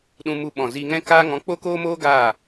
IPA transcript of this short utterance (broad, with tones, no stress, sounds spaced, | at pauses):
ɗ ũ˧ m u˧ ɓ ɔ̃˨ z i˧ ŋ ɛ̃˦ k aː˧ ŋ ɔ̃˨˦ k͡p o˦ k oː˦ m oː˦ ɡ aː˦˨